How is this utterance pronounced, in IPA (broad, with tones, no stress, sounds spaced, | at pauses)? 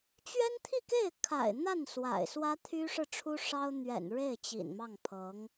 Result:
t͡ɕ ɥ ɛ˥ n t̪ʰ i˥˧ k e˥˩ ɪ̯ kʰ a̰˨˩ ɪ̯ n̪ a˥˩ n s w a̰˨˩ ɪ̯ s w ä˥ t̪ʰ y˥ ʂ ɻ̩˥˩ ʈ͡ʂʰ u˥ ʂ ɑ˥ ʊ̯ n̪ ɥ ɛ̰˨˩ n ɻ e˥˩ ɪ̯ t͡ɕ ḭ˨˩ n m ɑ˥˩ ŋ pʰ ɤ˧˥ ŋ